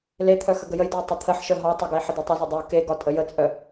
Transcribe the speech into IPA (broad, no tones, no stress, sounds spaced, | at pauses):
l e t̪ʰ œ x ə ɡ ə j ə j d e y̯ tˤ ə t̪ʰ ə ħ ʃ œ ɦ ɒ tˤ ə ɡ ə i̯ ħ ə d ɛ tˤ ɛ z ɒ dˤ ə u̯ k e ɡ ɒ tʼ ə j ə t͡sʼ œ